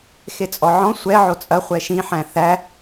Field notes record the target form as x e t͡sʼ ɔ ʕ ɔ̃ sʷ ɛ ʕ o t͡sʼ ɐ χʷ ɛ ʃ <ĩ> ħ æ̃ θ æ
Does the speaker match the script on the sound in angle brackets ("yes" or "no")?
yes